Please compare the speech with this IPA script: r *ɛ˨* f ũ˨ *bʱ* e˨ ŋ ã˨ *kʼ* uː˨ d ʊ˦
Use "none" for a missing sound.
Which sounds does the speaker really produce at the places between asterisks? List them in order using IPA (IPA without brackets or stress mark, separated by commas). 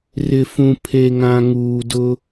ɪ˨, pʰ, ŋ